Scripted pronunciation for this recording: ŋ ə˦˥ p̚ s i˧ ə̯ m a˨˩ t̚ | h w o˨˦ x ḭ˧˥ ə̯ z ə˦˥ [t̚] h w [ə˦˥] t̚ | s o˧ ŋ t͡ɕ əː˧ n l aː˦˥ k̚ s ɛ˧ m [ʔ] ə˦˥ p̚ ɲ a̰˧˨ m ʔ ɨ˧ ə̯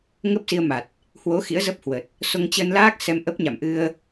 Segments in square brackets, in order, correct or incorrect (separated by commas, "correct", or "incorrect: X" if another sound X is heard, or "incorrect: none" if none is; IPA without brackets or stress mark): incorrect: p̚, incorrect: ə˨˩, correct